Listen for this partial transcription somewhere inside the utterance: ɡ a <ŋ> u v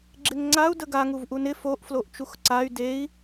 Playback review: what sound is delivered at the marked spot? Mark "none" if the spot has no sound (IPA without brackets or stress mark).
ŋ